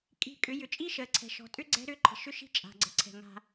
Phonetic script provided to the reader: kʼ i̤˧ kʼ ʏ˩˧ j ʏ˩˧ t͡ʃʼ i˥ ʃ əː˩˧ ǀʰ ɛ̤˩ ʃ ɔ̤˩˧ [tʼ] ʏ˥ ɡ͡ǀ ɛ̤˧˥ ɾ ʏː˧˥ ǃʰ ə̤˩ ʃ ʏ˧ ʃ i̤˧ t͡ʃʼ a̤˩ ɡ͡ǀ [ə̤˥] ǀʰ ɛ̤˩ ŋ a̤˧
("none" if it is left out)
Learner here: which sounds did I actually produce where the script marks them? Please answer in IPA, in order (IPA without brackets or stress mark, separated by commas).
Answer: tʼ, ə̤˩˧